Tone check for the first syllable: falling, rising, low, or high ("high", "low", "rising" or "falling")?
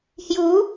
rising